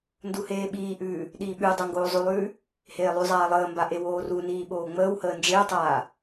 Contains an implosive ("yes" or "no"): yes